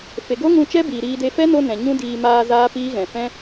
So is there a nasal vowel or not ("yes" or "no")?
yes